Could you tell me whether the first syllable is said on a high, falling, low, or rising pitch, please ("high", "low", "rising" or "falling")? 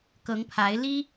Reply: rising